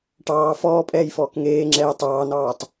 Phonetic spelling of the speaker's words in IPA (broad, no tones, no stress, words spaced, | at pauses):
ʈɑː fɔːpʼɛːjfɔːk ŋeːŋ͡ǁɛː tˤɑːnɑːtˤ